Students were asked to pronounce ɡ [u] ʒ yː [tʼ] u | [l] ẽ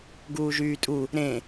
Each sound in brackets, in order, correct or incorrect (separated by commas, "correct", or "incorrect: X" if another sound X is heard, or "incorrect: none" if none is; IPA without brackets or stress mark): incorrect: uː, correct, incorrect: ɾ